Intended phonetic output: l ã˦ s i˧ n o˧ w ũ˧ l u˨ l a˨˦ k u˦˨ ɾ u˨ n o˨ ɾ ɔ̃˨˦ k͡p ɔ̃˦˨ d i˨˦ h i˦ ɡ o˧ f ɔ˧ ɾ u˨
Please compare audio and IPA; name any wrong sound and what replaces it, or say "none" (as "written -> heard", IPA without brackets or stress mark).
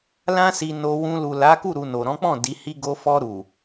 none